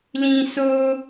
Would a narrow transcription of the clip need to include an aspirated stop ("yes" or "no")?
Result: no